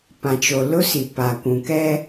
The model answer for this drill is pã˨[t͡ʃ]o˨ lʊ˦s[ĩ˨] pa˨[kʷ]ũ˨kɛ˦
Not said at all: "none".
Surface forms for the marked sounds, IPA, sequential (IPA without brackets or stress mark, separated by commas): t͡ʃ, i˨, kʷ